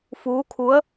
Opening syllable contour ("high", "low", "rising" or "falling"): rising